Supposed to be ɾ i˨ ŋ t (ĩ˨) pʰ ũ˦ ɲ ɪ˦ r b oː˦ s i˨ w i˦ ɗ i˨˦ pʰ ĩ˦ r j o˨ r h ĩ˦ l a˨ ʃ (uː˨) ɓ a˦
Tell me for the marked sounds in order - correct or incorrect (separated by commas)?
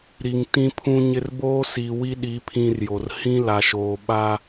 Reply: incorrect, incorrect